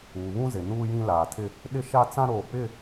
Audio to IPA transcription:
uː˨βũ˦zɪ˨ nuː˦jĩ˦ laː˨tʰɪ˦ | ɗɪ˦ʃa˦t͡sã˦ ɾoː˨k͡pɪ˦˨

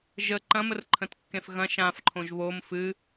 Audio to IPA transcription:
ʒə ǃɐ̃mər ǃʰə̃tkːẽfɣɐ̃ ʃãfǃʰõʒ βom fɨ

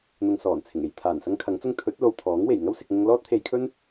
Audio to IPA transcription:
n̪ʊ˧ŋsɔː˨˩nt͡sʰɪ˨˩ŋ e˨j t̪ʰaː˨˩nsɐ˥ŋkʰɐ˨˥ŋt͡sʊ˥ŋ t̪ʰɵ˨˥t̚lo˨w t̪ʰɔː˨˥ŋ we˨˩jŋɐ˥wsɪ˨k̚ ŋʊ˧ŋlɔː˥t̚t̪ʰe˨˧jkʰɵ˥n

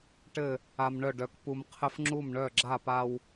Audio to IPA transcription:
ʈɘ˥˨ | a˦mɳœ˥˨ɖœ˦kpu˦m qʰɘ˦fŋ͡ǁu˥˨mɳœ˥˨ ɡ͡ǁa˥˨pa˦w

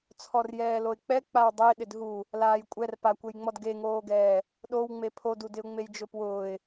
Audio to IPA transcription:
t͡sʰɔrjɛːloɪ̯k͡pɛ k͡pawdˤe ɗɪdɦu | laːjkʷʼɛr pakʷejŋ͡mɔd ɡeŋoːɡɛː | ɗowŋ͡me pʰodudɪʊ̯ŋ͡mej d͡ʒʊpwʊːɪ̯

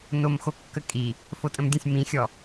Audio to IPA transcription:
nomxokːəkʼi | fotʼə̃mdʲə̃sʲ mĩxʲɔ

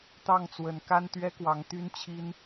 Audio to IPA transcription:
t̪ɑ˥˩ŋt͡swə˧˥n ka˥nt̪ɥɛ˥kwɑ˧˥ŋ t̪y˥nt͡ɕʰi˥n

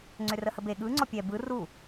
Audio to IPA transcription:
ŋ͡ǀʏrəhəbe ɠɯ ŋ͡ǀɔpʲɛ bɯ ru

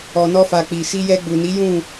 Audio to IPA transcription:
ɔ˨nɔ˧fa˨k͡pi˨ ʃi˧jɛ˧ɡ͡bu˨ni˨˦ jũ˦˨

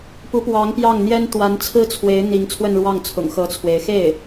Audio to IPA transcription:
pu˧˥pwɑ˧˥ŋpjɑ˥˩ŋn̪jɛ˥n t̪wa˧˥nt͡sʰɹ̩˥t͡sʰwe˧˥ɪ̯ n̪i˧˥ŋt͡sʰwə˥˧nɻwɑ˥˩ŋt͡sʰʊ̰˨˩ŋ xɤ˧˥t͡sʰwe˧˥ɪ̯ xe˥˩ɪ̯

